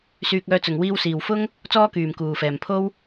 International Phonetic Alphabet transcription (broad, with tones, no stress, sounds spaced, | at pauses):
s yː˧ k̚ œː˧ t͡s ʊ˨ ŋ w iː˧ w s iː˨ w f ʊ˥ ŋ | t͡s ɔː˥ k yː˨ m k uː˨ f ɛː˨ m pʰ o˥ w